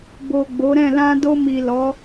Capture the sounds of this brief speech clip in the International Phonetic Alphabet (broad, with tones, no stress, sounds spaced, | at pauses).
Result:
b o˨ ɡ͡b o˨˦ ɾ ɛ̃˦˨ l ã˧ d o˧ m i˨ l ɔ˨˦